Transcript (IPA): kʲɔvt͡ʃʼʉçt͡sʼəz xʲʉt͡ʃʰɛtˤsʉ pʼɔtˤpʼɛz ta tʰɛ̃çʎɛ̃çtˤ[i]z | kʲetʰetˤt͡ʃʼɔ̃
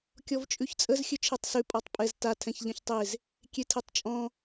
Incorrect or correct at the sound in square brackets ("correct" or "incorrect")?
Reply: incorrect